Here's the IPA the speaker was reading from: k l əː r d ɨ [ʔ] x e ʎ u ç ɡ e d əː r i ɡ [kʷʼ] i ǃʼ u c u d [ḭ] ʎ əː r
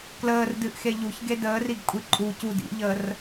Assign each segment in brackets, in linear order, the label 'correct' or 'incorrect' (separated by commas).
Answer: correct, correct, correct